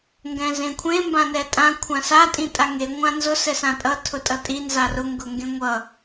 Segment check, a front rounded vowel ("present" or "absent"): absent